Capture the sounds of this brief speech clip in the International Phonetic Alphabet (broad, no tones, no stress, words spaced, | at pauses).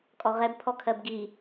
kʼɔʁɛb pʰɔkʰɜbɡi